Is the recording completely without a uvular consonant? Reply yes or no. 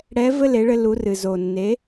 yes